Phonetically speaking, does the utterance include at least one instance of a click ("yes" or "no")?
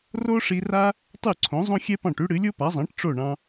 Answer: yes